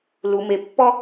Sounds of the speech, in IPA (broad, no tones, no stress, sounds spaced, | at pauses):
l u m e pː ɔ